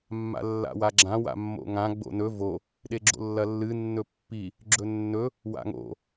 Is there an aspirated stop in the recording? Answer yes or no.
no